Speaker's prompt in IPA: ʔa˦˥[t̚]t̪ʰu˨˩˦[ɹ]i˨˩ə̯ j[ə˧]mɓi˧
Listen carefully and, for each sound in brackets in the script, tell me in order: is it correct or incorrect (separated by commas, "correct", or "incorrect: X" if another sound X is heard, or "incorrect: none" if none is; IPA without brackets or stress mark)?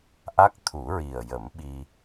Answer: incorrect: k̚, correct, incorrect: ə˨˩˦